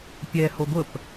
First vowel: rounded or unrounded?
unrounded